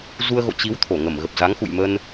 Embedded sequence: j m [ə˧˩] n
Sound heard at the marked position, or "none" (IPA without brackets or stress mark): ə˧